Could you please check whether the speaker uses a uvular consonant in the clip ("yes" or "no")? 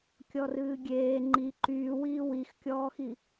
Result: no